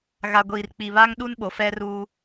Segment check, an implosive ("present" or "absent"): present